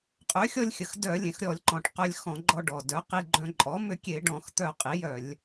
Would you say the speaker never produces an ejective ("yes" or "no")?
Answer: no